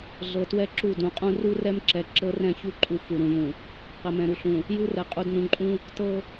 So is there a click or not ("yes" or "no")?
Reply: yes